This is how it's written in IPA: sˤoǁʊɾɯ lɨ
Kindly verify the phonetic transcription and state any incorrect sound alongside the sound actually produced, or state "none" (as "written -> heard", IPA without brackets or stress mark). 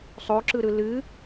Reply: ʊ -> ɯ